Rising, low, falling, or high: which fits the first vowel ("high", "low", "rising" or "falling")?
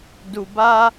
low